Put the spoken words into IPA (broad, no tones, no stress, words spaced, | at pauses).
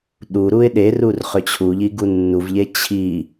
ɗuɾuɪ̯ ɗerur χʏt͡ɕʰuʎi ɡunːuvʎe t͡ɕʰi